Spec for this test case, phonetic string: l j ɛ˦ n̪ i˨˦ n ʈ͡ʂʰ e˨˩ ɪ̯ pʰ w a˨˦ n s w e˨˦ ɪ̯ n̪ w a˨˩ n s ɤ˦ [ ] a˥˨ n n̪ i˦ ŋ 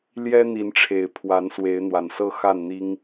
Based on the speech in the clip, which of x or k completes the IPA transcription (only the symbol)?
x